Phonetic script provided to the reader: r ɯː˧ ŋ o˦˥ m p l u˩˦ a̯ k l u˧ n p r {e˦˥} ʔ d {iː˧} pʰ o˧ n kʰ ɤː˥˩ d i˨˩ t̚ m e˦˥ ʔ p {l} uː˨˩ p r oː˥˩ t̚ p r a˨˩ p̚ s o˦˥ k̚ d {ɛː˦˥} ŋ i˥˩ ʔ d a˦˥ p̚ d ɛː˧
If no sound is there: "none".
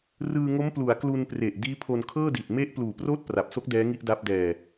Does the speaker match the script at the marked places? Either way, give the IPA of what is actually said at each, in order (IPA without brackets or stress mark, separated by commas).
e˨˩, iː˦˥, l, ɛː˦˥